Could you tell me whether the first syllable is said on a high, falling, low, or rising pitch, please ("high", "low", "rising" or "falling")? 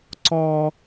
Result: high